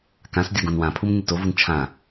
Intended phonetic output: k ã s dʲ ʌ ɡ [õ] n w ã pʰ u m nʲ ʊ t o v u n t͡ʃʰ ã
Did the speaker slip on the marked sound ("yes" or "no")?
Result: no